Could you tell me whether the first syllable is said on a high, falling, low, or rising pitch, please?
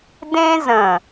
high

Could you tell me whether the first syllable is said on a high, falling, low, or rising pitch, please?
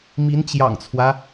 rising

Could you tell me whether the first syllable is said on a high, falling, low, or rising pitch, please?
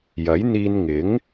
rising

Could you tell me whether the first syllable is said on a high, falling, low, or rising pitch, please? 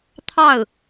falling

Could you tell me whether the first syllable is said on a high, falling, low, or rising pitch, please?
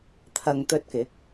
low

